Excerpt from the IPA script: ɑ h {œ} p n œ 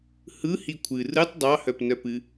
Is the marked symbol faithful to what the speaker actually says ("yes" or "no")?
yes